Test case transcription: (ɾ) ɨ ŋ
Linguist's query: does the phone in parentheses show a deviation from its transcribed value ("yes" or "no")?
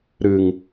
no